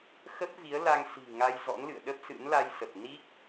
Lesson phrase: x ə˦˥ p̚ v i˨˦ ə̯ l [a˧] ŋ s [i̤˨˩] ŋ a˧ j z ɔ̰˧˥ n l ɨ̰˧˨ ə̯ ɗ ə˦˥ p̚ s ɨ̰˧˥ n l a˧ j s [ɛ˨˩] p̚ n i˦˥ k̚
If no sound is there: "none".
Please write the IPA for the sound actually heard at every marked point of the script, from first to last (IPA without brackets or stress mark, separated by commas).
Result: a˧, i̤˨˩, ə˨˩